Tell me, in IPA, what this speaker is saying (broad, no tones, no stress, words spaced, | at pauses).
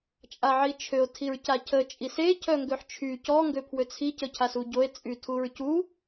t͡ʃʼaʕit͡ʃʰøo̯ tʰiɹcacʰə t͡ʃʼise cʰœŋɡøħt͡ʃʰy cɔ ŋɡøpʰwøt͡sʰi cəcʰasuɟoe̯ t͡sʼytʰuɹcu